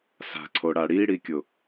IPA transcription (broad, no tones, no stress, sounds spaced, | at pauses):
s a̤ ǀʰ o ɽ a ɽ i ɽ i kʲ ʊ